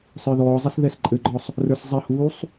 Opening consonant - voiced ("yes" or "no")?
no